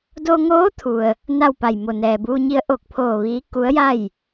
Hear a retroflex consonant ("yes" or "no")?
no